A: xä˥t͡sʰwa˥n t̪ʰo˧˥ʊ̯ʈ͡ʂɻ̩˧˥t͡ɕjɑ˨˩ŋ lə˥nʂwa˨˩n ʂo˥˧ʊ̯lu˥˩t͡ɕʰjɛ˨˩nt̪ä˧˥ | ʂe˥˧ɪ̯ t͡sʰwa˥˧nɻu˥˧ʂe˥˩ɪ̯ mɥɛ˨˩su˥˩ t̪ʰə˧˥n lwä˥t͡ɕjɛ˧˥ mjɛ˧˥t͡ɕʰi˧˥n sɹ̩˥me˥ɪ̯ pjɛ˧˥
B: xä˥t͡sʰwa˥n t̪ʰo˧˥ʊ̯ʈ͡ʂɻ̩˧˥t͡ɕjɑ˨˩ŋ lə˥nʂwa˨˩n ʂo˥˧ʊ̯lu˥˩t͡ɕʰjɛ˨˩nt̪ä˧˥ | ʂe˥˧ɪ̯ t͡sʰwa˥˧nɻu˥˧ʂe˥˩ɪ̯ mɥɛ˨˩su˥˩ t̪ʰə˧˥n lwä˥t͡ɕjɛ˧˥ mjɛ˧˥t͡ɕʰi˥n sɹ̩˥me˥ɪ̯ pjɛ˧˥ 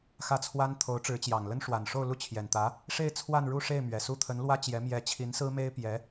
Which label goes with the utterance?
A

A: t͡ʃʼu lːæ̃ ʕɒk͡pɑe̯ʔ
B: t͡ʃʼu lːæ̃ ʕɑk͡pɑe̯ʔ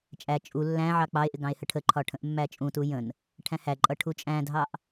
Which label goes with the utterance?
B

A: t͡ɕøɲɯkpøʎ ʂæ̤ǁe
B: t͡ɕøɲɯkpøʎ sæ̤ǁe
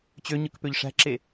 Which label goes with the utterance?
A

